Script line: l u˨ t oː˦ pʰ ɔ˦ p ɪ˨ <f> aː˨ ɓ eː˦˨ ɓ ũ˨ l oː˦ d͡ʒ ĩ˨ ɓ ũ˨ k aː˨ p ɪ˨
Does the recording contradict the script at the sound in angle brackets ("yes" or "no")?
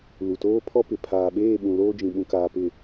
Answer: yes